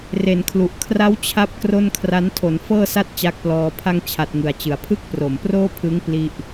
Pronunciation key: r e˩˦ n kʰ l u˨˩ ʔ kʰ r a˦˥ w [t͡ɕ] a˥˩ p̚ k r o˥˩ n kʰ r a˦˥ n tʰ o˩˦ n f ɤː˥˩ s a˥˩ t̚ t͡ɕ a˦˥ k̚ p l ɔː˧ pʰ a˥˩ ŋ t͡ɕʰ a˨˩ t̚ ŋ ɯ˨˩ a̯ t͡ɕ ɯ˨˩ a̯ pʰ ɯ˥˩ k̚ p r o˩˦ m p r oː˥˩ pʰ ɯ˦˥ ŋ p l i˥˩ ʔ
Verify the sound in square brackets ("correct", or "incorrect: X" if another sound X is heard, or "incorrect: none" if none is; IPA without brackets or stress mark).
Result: incorrect: t͡ɕʰ